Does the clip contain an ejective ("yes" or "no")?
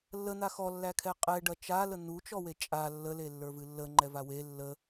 yes